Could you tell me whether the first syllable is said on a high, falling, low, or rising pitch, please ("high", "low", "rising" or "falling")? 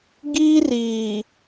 high